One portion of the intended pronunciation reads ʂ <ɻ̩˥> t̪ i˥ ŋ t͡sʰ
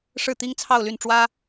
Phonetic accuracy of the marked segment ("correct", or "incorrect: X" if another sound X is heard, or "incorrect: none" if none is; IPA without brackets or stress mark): incorrect: ɻ̩˥˩